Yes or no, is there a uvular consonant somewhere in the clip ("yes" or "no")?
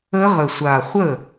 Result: yes